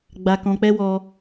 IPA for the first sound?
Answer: ɡ͡b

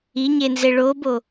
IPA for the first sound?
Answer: i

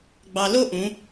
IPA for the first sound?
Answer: ɡ͡b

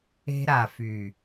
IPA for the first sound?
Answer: e̤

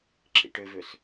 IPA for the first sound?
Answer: ǁ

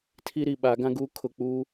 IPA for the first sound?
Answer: tʰ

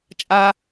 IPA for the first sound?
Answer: t͡ʃʼ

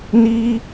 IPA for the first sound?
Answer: n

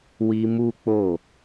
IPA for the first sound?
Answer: w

